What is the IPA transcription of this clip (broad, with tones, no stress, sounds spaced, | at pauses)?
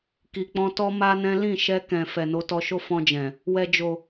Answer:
k i˨ k͡p ɔ̃˧ t ɔ˦ m a˦ n ɛ̃˦ l ĩ˦˨ ʃ ɛ˧ k ɛ̃˨ f ɛ˨ n o˨˦ t ɔ˧ ʃ o˦ f ɔ̃˧ d͡ʒ ɛ̃˨ | w ɛ˨ d͡ʒ o˨